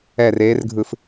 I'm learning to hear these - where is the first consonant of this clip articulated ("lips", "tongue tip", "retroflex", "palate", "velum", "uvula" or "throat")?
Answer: tongue tip